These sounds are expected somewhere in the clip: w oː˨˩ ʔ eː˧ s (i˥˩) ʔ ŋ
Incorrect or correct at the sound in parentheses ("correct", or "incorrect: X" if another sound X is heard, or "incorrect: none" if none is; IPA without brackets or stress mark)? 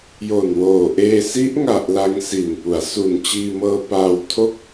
incorrect: i˦˥